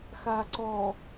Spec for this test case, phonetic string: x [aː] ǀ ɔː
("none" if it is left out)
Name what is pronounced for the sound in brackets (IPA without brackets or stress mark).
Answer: aː